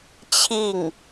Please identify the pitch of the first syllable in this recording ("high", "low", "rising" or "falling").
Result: falling